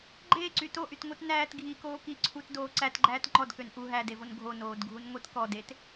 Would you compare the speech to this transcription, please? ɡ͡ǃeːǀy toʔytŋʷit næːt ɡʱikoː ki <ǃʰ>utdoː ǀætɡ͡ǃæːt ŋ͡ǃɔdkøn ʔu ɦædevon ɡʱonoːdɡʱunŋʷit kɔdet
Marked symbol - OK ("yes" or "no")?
no